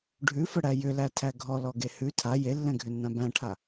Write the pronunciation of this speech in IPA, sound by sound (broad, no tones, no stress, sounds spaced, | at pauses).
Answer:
ɖʱ ʉ f ə ɽ æ j ʏ l æ tʰ æ ɡʱ ɔ l ɔ ɡ e h ʉ tʰ a j e lː ɛ̃ ɡʱ ʏ nː ã b æ̃ ʈʰ a